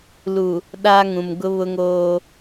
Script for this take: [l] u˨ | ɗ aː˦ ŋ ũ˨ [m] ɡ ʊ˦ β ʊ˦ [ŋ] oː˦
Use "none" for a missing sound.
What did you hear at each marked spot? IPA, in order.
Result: l, m, ŋ

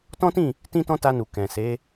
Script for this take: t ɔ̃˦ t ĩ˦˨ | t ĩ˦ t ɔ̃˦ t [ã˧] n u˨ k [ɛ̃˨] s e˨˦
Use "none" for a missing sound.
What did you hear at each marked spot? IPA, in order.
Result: a˧, ɛ̃˨

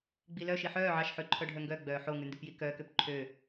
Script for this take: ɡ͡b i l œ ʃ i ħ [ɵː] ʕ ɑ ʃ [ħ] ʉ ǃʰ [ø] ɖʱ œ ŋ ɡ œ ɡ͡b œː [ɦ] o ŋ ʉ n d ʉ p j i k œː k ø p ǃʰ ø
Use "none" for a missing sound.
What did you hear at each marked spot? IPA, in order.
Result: œː, ħ, œ, ħ

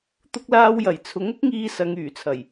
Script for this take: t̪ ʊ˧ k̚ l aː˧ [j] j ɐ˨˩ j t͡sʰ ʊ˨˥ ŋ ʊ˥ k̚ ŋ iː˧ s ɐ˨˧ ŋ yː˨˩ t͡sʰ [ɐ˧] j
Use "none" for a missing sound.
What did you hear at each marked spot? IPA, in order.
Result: w, ɐ˨˩

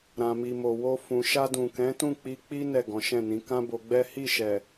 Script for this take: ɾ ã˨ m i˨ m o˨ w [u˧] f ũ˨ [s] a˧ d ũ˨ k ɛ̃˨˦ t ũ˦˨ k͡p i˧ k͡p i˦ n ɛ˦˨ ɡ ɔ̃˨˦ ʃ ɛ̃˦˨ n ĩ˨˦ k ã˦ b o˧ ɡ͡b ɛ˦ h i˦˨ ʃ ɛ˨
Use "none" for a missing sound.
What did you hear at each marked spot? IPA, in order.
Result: o˧, ʃ

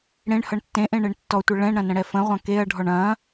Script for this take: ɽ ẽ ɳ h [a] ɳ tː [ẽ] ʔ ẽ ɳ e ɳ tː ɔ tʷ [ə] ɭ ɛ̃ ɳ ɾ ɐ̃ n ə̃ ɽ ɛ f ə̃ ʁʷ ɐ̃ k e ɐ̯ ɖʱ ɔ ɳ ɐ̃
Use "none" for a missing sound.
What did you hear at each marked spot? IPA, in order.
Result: ʌ, ẽ, ə

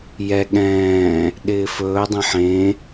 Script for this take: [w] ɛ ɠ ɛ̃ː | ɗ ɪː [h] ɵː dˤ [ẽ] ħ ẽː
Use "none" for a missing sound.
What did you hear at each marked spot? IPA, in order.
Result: j, f, ẽ

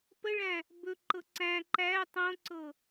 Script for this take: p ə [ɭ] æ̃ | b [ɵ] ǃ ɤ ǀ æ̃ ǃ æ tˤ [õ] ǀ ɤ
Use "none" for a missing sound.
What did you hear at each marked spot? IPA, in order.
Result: ɭ, ɵ, õ

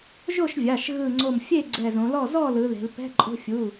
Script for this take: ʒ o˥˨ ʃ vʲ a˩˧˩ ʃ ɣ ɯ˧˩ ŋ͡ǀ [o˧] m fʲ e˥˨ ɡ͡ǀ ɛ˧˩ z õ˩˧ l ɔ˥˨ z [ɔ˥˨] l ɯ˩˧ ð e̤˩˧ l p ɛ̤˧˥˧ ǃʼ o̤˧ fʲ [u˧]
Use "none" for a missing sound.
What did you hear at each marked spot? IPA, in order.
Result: o˧˩, ɔ˥˨, u˩˧˩

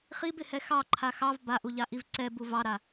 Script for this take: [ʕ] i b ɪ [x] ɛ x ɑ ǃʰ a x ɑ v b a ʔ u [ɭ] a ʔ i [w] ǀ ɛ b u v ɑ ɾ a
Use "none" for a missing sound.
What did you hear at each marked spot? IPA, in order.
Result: χ, h, ʎ, v

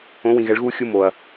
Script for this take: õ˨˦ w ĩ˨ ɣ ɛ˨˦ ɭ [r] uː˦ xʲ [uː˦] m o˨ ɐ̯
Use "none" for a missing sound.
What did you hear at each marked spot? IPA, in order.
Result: ɣ, u˦

